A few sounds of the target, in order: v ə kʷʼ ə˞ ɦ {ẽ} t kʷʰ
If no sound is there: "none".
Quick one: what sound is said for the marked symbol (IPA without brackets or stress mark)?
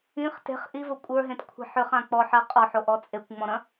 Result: ẽ